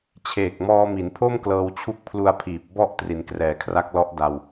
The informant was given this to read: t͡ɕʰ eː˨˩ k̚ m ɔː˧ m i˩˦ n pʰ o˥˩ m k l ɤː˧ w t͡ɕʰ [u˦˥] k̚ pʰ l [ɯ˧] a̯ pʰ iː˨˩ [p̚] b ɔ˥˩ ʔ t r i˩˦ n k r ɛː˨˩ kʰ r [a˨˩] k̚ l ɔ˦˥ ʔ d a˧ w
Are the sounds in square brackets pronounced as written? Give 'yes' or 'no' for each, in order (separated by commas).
yes, no, yes, no